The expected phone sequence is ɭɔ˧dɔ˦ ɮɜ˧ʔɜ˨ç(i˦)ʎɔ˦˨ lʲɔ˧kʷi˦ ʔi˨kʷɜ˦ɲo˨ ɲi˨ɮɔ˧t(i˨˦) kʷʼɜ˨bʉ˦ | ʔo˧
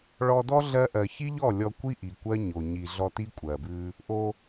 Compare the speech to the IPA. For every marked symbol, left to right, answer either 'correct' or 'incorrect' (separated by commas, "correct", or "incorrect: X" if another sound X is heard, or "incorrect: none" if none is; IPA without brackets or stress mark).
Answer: correct, incorrect: i˦